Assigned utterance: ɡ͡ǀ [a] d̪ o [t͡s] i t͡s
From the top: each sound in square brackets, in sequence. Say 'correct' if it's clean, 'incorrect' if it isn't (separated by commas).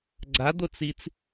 correct, correct